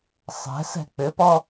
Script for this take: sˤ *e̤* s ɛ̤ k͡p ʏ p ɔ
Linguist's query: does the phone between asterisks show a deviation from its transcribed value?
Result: yes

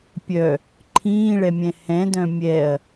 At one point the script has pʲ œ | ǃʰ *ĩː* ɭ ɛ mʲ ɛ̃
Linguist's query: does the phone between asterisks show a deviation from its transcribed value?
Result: no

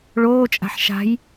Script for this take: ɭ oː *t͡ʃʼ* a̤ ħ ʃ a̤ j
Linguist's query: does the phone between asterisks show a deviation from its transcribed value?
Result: no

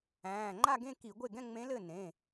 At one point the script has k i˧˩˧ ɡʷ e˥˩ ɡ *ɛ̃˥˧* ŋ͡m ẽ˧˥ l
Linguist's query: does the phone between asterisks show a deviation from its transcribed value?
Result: no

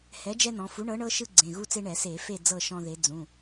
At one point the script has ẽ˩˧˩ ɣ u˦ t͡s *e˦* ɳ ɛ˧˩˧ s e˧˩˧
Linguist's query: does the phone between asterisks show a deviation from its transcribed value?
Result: no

